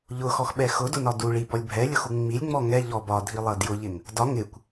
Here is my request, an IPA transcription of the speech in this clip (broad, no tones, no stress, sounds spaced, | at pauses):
ʎ ʊ x ɔ x ɓ ɛ x ʊ d ʊ n ɒ d u ɭ i b ɔ lʲ bʱ ɛ lʲ ʊ x u ŋ͡m i lʲ ŋ͡m ɔ ŋ ɛ ʎ ɔ b ɒ dʱ i lˠ ʌ d j ʊ ʎ ɪ ŋ | d ɒ ŋ ɪ kʷ